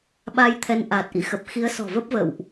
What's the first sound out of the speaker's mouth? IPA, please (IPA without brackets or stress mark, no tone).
ɓ